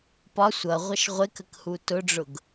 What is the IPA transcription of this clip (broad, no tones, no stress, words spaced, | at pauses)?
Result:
pɒ sʷʌ ʁʷʌʃʁʷɪkək hutʊɖ͡ʐʊɡ